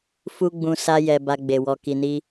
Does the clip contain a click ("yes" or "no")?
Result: no